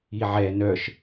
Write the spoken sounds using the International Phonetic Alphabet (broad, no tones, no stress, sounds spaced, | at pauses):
i ʕ ɛ n œ ʃ